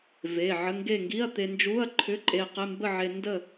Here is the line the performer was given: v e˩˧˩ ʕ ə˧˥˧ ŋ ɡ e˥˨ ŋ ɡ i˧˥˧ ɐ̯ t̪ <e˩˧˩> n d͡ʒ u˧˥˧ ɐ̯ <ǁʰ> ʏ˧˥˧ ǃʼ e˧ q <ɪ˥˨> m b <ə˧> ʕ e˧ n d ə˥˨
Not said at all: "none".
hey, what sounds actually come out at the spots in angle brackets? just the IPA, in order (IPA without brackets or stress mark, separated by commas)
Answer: e˧, ǃʰ, ɪ˧˥˧, ə˥˨